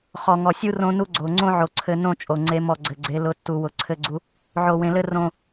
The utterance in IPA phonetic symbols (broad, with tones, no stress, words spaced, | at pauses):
χɔ˨ŋɔ˨sʲu˦ rõ˦nu˦ɡ͡ǀo˨ ŋ͡ǀõ˦ʕo˨ǀʰɘ˨nõ˦˨ t͡ʃʼo˨ŋ͡ǀe˦mɔ˦˨ ɡ͡ǀɘ˨ɡ͡ǀe˨˦ lʊ˨tːu˨ wʊ˨ǀʰɘ˦˨ɡ͡ǀu˦ | ʕo˨wẽ˨lɘ˦ rõ˦